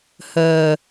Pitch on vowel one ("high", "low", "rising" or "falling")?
low